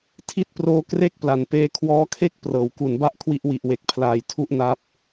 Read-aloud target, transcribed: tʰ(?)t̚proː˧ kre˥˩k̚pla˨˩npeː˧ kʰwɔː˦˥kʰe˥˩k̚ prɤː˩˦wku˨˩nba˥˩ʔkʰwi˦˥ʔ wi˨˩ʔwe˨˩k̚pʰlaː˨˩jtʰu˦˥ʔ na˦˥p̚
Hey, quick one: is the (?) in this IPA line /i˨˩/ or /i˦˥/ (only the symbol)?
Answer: i˦˥